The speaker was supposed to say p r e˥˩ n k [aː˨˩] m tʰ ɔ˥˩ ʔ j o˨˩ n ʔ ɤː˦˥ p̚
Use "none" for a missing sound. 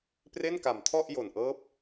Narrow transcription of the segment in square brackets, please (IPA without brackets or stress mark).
a˨˩